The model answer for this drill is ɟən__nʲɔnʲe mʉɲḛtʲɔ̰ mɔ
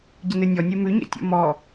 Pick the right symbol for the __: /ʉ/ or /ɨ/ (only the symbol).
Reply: ɨ